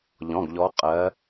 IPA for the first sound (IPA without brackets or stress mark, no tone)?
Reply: ʎ